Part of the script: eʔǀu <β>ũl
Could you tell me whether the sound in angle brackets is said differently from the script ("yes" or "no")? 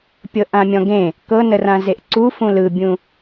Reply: yes